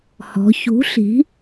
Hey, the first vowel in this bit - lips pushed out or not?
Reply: yes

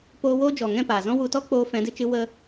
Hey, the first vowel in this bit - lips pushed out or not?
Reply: yes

